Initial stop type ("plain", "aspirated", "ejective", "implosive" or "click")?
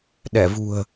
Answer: implosive